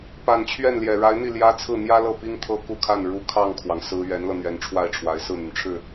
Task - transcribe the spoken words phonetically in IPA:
p a˨˩ n t͡ɕʰ ɥ ɛ˥˩ n l j ɛ˨˩ ɻ a˧˥ ɪ̯ n̪ i˥˩ l j ä˥ t͡sʰ ɹ̩˥˩ n̪ j ä˥ l ɤ˥˩ p i˥ ŋ t̪ʰ ɤ˥ k u˥˧ kʰ a˥˩ n ɻ u˧˥ kʰ ɑ˥˩ ŋ kʰ w ɑ˩ ŋ s ɹ̩˥ ɥ ɛ˧˥ n l ɤ˧ n̪ ɥ ɛ˧˥ n ʈ͡ʂʰ w a˥˩ ɪ̯ ʈ͡ʂʰ w a˧˥ ɪ̯ s ɹ̩˥˩ n̪ y˩ n ʈ͡ʂʰ ɻ̩˥˩

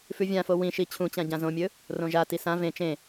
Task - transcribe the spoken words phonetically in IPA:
f ʉ vʲ ã f o w ĩ ʃ i t͡ɕʰ ũ t͡ɕ ã ɟ ã z õ mʲ ɵ | r õ ʒ a t i s ã v ẽ t͡ʃ ẽ

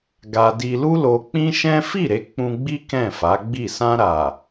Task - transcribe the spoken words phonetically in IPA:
ɡ a˧ d i˧ l u˦ l o˧ k͡p ĩ˦ ʃ ɛ̃˦ f i˦˨ ɾ e˨˦ k͡p ũ˧ ɡ͡b i˦ k ɛ̃˦˨ f a˨˦ ɡ͡b i˦˨ s ã˧ ɾ a˨

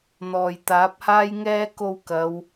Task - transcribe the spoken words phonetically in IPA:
n̪ ɔː˨ j t̪ aː˨˥ p̚ h aː˥ j ŋ ɛː˥ k o˧ w k ɐ˨˧ w

